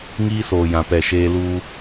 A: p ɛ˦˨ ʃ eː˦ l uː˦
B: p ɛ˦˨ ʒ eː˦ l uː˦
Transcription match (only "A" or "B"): A